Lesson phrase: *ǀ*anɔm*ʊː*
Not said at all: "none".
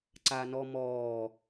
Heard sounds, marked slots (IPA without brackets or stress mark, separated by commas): ǀ, ɔː